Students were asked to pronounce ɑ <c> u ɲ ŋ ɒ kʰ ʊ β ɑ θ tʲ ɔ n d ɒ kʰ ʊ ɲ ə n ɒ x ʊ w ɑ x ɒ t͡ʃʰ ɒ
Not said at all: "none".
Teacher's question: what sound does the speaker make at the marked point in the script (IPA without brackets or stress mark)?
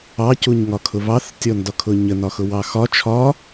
c